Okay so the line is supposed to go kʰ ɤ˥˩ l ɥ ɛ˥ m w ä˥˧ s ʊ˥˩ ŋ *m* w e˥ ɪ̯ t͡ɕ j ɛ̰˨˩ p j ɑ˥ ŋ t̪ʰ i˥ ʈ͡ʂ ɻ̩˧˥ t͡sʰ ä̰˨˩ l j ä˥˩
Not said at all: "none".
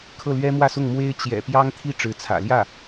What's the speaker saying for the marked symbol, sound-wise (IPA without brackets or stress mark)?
m